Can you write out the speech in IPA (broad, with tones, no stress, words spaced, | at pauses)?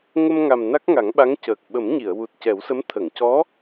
ŋə˧mŋa˨˩m na˦˥k̚ŋa˨˩˦ŋɓa˧˥ŋ cəː˨˩k̚ɓə˨˩˦mɲi˨˩˨ə̯ wu˨˩t̚ cɛ˨˩˦wsə˧˥m t̪ʰə˨˩˨ŋcɔ˧˥